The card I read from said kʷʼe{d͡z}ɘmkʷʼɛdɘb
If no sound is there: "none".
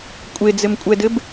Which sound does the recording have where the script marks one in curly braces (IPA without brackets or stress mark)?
d͡z